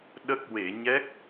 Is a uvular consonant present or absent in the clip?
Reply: absent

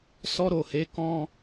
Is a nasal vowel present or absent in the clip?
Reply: present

